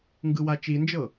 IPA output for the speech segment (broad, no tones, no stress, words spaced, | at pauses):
ŋɡɯwat͡ʃind͡ʒɤ